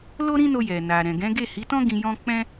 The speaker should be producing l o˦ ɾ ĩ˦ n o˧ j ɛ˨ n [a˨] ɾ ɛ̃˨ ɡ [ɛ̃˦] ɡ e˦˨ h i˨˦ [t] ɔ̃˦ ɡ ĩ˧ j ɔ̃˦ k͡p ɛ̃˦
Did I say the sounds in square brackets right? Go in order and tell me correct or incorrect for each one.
correct, incorrect, correct

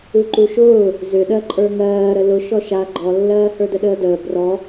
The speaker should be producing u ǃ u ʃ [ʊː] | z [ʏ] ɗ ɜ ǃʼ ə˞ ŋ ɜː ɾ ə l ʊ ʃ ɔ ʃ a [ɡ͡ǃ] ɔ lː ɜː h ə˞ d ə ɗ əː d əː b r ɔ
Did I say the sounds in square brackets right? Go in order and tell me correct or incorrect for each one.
correct, correct, correct

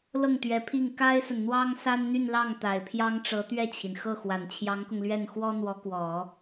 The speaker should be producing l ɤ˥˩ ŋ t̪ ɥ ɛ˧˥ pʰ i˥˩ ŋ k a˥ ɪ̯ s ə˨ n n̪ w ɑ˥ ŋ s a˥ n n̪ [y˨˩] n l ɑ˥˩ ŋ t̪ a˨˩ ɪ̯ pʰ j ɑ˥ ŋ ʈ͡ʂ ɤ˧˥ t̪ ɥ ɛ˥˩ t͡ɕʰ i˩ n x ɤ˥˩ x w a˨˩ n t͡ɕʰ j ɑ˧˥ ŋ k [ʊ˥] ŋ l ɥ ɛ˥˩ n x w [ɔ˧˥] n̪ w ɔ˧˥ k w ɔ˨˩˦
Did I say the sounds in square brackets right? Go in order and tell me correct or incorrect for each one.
incorrect, incorrect, incorrect

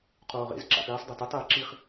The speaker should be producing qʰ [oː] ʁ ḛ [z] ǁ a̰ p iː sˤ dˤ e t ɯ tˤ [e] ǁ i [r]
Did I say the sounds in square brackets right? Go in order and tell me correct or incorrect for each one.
correct, correct, incorrect, incorrect

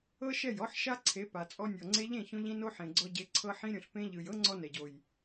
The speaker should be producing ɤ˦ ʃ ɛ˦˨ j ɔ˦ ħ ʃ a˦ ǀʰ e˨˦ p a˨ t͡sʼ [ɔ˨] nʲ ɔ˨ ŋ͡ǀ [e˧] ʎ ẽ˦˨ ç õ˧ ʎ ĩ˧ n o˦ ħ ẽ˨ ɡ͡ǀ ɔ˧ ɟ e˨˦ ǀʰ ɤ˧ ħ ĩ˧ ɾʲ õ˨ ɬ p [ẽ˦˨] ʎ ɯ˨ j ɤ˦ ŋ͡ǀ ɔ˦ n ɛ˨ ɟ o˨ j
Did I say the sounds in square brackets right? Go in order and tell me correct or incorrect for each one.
incorrect, correct, incorrect

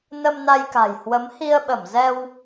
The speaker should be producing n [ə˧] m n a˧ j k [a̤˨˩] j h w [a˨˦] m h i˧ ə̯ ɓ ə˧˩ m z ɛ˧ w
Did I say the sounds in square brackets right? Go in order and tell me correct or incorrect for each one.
correct, correct, incorrect

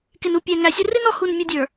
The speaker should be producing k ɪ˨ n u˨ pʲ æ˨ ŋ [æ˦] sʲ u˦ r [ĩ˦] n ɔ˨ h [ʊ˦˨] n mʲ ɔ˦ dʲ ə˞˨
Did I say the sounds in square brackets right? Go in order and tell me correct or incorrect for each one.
incorrect, incorrect, incorrect

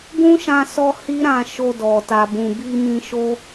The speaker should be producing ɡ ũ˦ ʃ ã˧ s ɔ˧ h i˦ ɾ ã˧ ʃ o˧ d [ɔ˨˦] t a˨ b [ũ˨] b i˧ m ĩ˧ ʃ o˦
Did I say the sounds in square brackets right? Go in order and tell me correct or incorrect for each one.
incorrect, correct

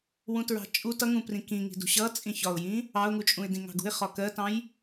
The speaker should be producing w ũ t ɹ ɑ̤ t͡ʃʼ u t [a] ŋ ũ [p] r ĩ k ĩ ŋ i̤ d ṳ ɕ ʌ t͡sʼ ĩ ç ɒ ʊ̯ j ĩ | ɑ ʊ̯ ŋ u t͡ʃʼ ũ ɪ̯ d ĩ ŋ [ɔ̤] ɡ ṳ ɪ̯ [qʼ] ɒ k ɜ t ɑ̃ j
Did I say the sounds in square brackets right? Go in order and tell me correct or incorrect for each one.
incorrect, correct, incorrect, incorrect

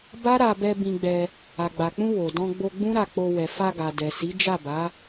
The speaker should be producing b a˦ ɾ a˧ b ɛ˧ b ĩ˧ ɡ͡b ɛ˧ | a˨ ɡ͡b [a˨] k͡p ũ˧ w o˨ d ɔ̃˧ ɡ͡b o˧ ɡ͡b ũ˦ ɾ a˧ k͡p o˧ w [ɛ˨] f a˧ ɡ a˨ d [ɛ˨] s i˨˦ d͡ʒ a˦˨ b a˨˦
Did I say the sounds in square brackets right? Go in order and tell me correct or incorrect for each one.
correct, correct, correct

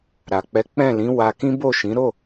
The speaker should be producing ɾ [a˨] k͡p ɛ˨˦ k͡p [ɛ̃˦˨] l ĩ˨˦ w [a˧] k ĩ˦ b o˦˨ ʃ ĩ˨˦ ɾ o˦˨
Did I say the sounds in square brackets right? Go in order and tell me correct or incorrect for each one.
correct, correct, correct

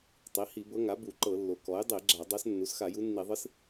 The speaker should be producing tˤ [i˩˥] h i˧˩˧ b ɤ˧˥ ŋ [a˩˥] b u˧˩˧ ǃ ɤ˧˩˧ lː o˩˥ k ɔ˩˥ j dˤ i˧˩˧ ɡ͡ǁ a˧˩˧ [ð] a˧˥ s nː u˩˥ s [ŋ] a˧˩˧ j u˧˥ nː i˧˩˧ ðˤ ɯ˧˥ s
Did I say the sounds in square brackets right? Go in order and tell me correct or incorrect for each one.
correct, correct, incorrect, incorrect

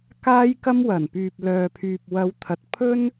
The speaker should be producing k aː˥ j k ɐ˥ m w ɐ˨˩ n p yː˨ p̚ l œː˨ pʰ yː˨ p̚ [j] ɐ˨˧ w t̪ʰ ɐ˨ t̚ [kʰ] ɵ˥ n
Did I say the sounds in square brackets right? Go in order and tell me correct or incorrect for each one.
incorrect, incorrect

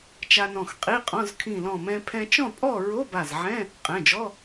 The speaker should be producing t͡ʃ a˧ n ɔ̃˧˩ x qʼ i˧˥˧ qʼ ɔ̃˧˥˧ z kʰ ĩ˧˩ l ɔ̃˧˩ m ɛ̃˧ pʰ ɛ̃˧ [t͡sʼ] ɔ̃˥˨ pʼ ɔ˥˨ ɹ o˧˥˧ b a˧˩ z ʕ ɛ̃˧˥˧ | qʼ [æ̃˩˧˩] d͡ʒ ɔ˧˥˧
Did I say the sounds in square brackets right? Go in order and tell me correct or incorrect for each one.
incorrect, incorrect

